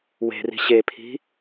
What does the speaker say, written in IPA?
w e̤ r i̤ ɕ e pʰ i̤

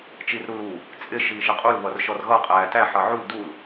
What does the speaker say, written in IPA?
t͡ʃ i r ɾ u l u | t͡sʼ ɪ ʃ iː ʃ ɪ qʼ u l β ʌ r ʃ ɔ r ɣ ʌ qʼ æː t æ ħ ʌ ʕ u l d u l

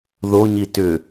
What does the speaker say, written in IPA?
ð o ɲ i t ʏ

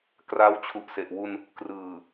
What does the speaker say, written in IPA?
k r aː˦˥ w t͡ɕʰ u˨˩ ʔ s e˨˩ ʔ w u˧ n | k r ɯː˨˩

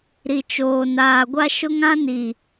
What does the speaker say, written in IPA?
ɾ i˨ t͡ʃ oː˨ n aː˨ ɡʷ a˦ ʃ ʊ˦ ŋ ã˦ n i˨

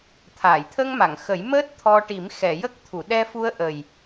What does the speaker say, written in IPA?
t̪ʰ aː˨˩˨ j t̪ʰ ə˧ ŋ m a˨˩˨ ŋ x ə˨˩˦ j m əː˦˥ t̚ t̪ʰ ɔ˧ ʈ i˨˩˦ m x ɛ˨˩˨ j ə˦˥ k̚ t̪ʰ u˨˩˨ ɗ ɛ˧ f u˧ ə̯ ʔ ə˨˩ j

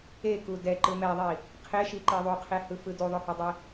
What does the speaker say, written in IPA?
e k u d ɛ ǃ ɯ m ɛ ðˤ i | qʰ e ʃ i ǃ i ðˤ u qʰ e h ɯ f ɯ d u ðˤ o h o dˤ e

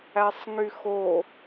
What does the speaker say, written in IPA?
æ sˤ ŋ y x o

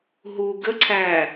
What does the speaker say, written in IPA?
ɦ u ɡ ə ǀʰ æ

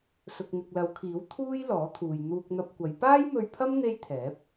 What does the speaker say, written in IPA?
s ʊ˨ k̚ n̪ ɪ˨ k̚ l ɐ˨˧ w kʰ iː˨˥ w t̪ʰ uː˥ j l ɔː˨˥ t̪ʰ uː˨ j n̪ uː˧ k̚ n̪ ɐ˧ p̚ kʷ ɐ˨˧ j p aː˥ j m ɵ˧ ɥ pʰ ɐ˥ m n̪ e˥ j t̪ʰ ɛː˨˥ p̚

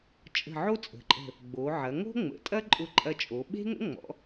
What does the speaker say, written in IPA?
t͡ʃʼ ə̤˧˩ ʕ o˥ t͡sʼ ə̤˩˧ ǃʼ ə̤˧˩ | ɡ͡b o˩˧ ʕ ɐ˩˧ ŋ o̤˥ ŋ͡m ə̰˩˧ tʼ ɐ˥ ǃʼ ʊ˧ ǃʼ ɐ˧ t͡ʃʼ o˩˧ ɓ e̤˥ ŋ ə̰˥ ŋ͡m ɔ̰˩˧

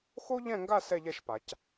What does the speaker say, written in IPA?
x o˥ ʎ ɛ̃˥˧ ŋ ɡ a˥˧ s ɛ˥˧ ʎ ɛ˥˧ ʃ p a˩˧ c

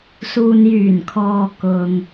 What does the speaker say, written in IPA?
s uː˨ n j yː˨˩ n kʰ ɔː˨ k ʊ˨ ŋ

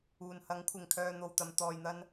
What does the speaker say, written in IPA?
uː˨˩ n h ɐ˨˥ ŋ kʷʰ ɪ˨ ŋ kʰ œː˧ n̪ o˨ w t̪ ɐ˨˧ m t̪ ɔː˨ j n̪ ɐ˧ n

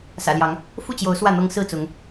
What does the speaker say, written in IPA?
s ä̰˨˩ l j ɑ˨˦ ŋ | f u˥˨ t͡ɕ j o˨˦ ʊ̯ s w ä˥˨ n̪ ɤ˦ ŋ s ɹ̩˥˨ t͡s ʊ˨˦ ŋ

